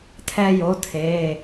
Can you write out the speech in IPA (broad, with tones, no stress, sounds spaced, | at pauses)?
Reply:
tʰ ɛ˦ j o˨˥ tʰ eː˩˧˩